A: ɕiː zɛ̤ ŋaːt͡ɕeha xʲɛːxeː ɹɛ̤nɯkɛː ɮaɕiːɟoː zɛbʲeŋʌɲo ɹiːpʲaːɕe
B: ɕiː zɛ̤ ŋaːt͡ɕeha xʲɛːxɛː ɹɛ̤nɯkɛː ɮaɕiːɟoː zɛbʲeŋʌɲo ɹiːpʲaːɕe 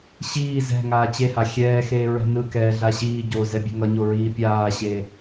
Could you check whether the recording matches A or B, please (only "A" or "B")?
A